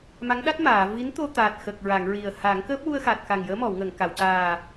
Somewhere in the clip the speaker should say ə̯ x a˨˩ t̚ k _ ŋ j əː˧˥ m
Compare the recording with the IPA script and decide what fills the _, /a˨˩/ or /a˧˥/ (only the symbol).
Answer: a˨˩